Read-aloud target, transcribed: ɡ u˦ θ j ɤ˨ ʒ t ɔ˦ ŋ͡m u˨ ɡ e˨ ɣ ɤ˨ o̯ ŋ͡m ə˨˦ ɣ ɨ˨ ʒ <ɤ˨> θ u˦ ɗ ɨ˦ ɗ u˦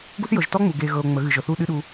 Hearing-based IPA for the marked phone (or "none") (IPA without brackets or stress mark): ɤ˨